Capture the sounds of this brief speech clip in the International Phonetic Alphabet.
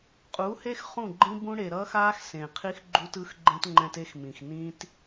qʼ u˨˦ h e˦ x χ ũ˦˨ ɡ͡ǃ ĩ˦ b ũ˦ ɽ e˨ ɾ ʌː˦ x aː˦ x s ẽ˨ qʰ i˦ x ɡ͡ǃ u˦ t ɯ˦ x ɡ͡ǃ ẽ˦ t ŋ͡ǃ ɛ̃˦ t e˦ x m ĩ˨ x n ĩ˦ t

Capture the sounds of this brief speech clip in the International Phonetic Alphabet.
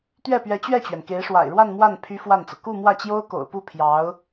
t̪ ɥ ɛ˥˩ p ɥ ɛ˧˥ t͡ɕ ɥ ɛ˥˩ t͡ɕ ɥ ɛ˩ n k e˧˥ ɪ̯ ʂ w a̰˨˩ ɪ̯ ɻ w a˥˧ n m w a˥˩ n pʰ y˥ f w a˥˩ n t͡s ɤ˩ k u˥˧ m w ä˥˩ t͡ɕ j o˥ ʊ̯ k o̰˨˩ ʊ̯ p u˥˩ pʰ j ɑ˧˥ ʊ̯

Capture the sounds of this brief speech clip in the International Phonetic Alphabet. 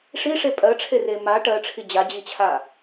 ʂ i ʂ e pʼ ɜ ʈ͡ʂʰ e r e m a ʈ ɜ ʈ͡ʂʰ i d͡ʑ a d͡ʑ i t͡ɕʰ a

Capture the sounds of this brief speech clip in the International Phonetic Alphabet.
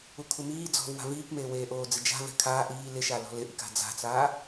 u kʰ u m iː d͡z ɔ̤ v w a̤ v iː k m eː w eː ʔ oː d͡z ɪ d͡ʒ a̤ v ɛ̤ kʰ aː ʔ iː l ɪ ʃ a l ɔ̤ l ɪ ʔ i k a̤ d͡z a̤ t͡s aː

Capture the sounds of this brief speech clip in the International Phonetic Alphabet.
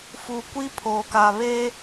f u˨ kʷ i˦ pʰ oː˨ k aː˨ β eː˦

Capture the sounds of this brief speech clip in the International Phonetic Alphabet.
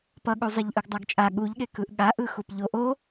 p ʌ ɠ u zˤ i ʎ ʔ ɯ ɡ dˤ a ɡ t͡ʃʼ a ɠ u ʎ ɠ e k ɯ ʔ ɠ a ʔ ɯ x u p ʎ o ʔ o

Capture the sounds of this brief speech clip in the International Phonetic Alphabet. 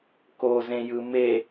k o z ẽ j ɯ m e

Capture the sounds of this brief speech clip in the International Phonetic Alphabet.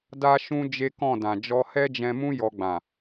d a˦ ʃ ũ˦ d͡ʒ e˦ k ɔ̃˦˨ d ã˨ d͡ʒ ɔ˧ h ɛ˦ d͡ʒ ɛ̃˧ m ũ˦ j ɔ˧ ɡ͡b ã˨

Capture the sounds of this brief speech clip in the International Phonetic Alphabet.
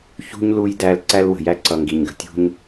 ç ṳ˥ ɲ l u˦ j d æ˦ l ǀ æ˦ l w ə̤˩ j æ˦ ǀ ʌ˨ ŋ ɡ i˩ ɲ ɡ ə̤˩ tʲ ṳ˦ ɲ

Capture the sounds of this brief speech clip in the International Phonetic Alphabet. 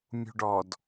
mʲ ṳ ɖ ɔ d

